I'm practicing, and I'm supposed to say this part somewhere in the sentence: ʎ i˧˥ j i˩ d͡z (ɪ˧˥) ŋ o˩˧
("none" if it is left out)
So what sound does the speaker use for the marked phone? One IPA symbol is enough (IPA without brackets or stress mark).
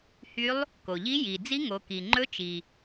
i˧˥